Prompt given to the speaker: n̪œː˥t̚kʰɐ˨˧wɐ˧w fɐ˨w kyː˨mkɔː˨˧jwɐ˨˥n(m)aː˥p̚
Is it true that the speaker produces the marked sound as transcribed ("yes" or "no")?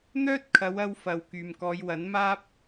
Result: yes